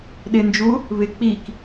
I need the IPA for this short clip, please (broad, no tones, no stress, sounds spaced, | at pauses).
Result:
ɗ ɪ n d͡ʒ u | β ɪ k͡p i k